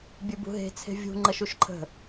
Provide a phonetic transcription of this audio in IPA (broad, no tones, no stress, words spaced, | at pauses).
bʲɨbṳɦe̤ t͡sʰe̤vʲṳ ŋ͡ǃəʃuʃǃʰə̤